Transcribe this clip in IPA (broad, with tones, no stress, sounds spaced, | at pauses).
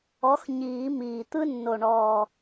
ɔ˨˥ x ɲ iː˨˩˦ m iː˨˩ t̪ ɯ˦ nː o˨˩ ɳ ɔː˨˩